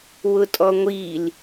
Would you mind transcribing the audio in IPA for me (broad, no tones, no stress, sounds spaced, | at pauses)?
w ʊ tʼ ɔ ŋʷ i l